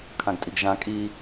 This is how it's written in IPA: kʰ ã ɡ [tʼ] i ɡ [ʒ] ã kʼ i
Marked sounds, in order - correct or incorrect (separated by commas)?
correct, correct